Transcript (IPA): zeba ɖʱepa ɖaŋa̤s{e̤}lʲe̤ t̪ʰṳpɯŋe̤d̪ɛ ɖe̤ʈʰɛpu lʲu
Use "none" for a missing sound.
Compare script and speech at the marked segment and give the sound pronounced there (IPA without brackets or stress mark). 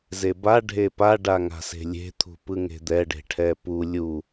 e̤